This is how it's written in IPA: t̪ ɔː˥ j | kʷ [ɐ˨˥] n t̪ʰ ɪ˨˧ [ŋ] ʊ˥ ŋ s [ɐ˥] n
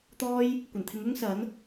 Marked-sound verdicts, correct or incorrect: incorrect: ɐ˨˩, correct, incorrect: ɐ˨˥

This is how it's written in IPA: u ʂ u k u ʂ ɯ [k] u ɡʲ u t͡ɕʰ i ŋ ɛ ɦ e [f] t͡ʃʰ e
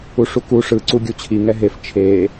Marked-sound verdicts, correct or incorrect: incorrect: ǀ, correct

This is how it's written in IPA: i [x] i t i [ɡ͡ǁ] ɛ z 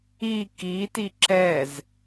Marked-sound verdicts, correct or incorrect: incorrect: k, incorrect: ǁ

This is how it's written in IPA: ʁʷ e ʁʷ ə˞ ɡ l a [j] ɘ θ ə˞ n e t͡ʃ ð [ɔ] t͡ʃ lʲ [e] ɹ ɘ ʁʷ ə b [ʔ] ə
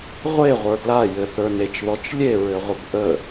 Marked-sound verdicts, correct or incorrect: correct, correct, correct, correct

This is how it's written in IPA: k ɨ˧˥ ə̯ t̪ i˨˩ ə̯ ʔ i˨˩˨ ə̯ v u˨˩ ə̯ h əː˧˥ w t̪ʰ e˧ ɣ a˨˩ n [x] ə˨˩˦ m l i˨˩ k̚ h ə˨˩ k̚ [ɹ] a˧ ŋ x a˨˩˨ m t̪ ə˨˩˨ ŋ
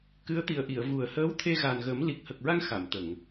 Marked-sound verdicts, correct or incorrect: incorrect: ɣ, correct

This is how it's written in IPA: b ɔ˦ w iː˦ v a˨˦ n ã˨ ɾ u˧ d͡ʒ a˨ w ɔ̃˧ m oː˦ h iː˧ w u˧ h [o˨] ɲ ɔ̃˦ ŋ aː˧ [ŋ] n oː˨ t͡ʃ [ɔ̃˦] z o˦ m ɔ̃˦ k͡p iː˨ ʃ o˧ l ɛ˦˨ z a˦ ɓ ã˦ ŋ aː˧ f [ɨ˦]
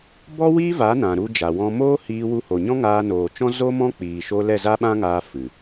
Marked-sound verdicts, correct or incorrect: correct, incorrect: none, correct, incorrect: ɨ˨

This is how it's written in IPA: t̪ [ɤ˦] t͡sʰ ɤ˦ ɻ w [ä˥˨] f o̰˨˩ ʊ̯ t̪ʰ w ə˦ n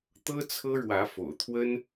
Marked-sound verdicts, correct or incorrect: correct, incorrect: ä˨˦

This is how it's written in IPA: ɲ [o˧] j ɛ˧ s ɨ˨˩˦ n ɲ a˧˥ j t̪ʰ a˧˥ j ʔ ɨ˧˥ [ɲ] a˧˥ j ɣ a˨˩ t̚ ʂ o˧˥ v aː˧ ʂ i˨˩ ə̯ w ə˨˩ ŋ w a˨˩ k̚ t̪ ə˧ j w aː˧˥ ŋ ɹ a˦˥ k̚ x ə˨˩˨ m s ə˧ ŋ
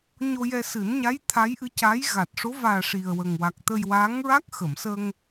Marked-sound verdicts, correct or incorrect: correct, incorrect: c

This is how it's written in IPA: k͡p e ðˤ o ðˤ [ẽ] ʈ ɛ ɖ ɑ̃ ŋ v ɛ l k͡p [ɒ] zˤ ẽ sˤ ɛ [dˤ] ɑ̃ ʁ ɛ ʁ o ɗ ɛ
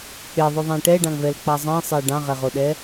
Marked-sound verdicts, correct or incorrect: correct, incorrect: ɑ, incorrect: ɖ

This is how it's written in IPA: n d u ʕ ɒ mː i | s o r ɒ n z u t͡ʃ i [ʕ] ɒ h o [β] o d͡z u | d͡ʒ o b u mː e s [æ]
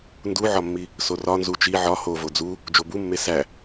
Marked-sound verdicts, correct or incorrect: correct, incorrect: v, correct

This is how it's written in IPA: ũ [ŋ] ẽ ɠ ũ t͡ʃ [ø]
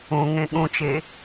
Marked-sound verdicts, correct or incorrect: correct, incorrect: e

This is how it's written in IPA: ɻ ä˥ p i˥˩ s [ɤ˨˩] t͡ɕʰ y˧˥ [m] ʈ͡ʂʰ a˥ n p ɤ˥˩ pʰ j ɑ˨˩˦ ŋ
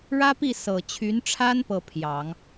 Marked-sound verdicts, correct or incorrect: correct, incorrect: n

